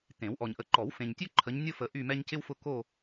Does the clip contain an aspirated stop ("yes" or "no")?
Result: yes